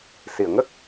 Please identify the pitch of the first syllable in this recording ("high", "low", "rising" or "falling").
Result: low